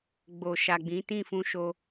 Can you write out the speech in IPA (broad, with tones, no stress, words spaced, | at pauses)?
ɡ͡bo˨ ʃa˨ɡ͡bĩ˨˦ tĩ˦˨fũ˧ʃo˧